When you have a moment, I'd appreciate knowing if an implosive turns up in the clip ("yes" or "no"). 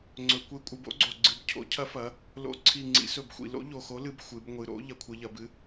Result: no